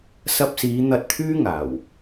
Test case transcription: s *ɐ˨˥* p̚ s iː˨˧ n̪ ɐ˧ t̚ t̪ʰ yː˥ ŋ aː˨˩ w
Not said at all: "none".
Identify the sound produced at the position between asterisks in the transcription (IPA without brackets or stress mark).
ɐ˧